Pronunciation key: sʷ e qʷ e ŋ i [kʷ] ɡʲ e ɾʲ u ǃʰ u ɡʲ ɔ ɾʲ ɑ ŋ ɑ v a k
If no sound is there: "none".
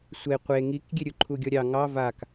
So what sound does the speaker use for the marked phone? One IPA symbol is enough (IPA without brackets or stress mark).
k